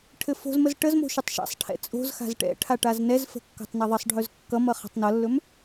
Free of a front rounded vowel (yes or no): yes